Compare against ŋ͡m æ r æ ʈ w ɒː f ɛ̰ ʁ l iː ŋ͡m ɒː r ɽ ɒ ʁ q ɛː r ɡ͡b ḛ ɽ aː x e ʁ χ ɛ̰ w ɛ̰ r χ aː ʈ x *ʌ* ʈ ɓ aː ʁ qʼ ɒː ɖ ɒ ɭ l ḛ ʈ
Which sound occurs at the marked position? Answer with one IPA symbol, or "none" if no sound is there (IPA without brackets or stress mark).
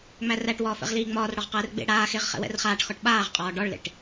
ɒ